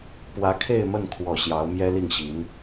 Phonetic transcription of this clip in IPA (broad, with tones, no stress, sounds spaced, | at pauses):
p w ä˧˥ kʰ e˥˧ ɪ̯ m ə˥˩ n kʰ w ɔ˨˩ ɕ j ɑ˧˥ ʊ̯ m j ɛ˥ l i˥˩ ŋ ɕ i˧˥ n